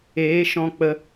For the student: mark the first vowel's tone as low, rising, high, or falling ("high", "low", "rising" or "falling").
rising